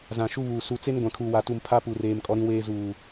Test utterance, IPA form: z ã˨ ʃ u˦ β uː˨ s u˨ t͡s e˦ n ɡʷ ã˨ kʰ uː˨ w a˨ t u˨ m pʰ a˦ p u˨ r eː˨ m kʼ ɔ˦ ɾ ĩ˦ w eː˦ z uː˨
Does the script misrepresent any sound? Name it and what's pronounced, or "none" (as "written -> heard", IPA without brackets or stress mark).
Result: none